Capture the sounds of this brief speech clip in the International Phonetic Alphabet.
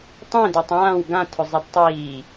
tˤẽdetˤ ãːw ɡãtʰʊzˤed tˤiː

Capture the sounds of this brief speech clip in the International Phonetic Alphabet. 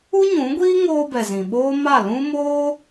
u˦ɲũ˨˦ɡʷiː˦ ŋoː˧bɛ˨ zĩ˨ ɓoː˦ ma˦˨lũ˦ moː˦

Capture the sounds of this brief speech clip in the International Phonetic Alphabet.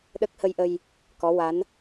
ɗə˦˥k̚ hə˧jʔə˧j | kɔ˧˥wa˧˥n

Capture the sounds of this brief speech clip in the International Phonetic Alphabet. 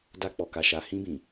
da˧ k͡pɔ˨ka˨ ʃa˨hĩ˧bĩ˨

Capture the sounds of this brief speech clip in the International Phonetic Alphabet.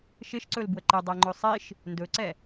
ʃɪʃǀɵl bwəǃɪdˤɛ ŋ͡ǃɵsˤiʃ | ndɵǀɛ

